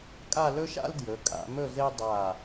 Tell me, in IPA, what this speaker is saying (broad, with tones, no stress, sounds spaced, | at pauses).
kʼ a˥˧ l ɵ˥ ʃ a̰˥ l d j ɵ˩˧ kʼ a̰˩˧ m ɵ˥˧ z e˥ dˤ a˧˩